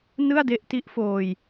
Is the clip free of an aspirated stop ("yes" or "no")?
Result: yes